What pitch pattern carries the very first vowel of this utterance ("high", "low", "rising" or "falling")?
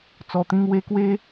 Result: low